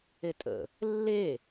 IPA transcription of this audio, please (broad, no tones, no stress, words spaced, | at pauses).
etʼə̰ | lːe